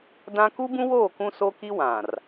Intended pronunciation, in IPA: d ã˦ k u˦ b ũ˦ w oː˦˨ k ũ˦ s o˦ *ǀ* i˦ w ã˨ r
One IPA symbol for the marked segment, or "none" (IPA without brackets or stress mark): k